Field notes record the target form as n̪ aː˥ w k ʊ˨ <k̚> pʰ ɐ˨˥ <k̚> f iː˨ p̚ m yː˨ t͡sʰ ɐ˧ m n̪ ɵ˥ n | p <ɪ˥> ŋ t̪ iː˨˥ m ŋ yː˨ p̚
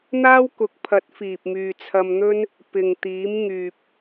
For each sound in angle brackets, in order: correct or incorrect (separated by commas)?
correct, incorrect, incorrect